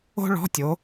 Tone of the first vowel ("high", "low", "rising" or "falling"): high